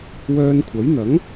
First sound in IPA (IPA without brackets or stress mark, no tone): w